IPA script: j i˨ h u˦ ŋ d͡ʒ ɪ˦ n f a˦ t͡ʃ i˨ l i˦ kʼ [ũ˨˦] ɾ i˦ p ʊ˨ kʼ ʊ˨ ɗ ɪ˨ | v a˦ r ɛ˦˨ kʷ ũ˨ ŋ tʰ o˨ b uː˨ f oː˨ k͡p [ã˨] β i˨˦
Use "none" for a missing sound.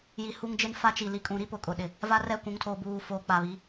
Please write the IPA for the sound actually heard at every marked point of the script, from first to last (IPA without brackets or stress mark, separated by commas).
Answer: ũ˨˦, a˨